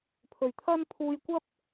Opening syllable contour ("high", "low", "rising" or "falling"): low